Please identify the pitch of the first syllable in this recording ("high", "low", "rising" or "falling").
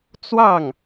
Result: falling